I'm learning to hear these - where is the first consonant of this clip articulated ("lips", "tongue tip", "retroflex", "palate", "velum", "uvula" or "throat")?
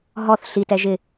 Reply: throat